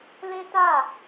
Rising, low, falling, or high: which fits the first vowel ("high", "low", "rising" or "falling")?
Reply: high